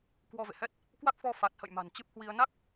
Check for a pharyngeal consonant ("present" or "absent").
absent